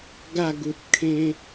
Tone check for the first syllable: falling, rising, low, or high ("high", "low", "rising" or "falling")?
falling